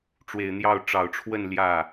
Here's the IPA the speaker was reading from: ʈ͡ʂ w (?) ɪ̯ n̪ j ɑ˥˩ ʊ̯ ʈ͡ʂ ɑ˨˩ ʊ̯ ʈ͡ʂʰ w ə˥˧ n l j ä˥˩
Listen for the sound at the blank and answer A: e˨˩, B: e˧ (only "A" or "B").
A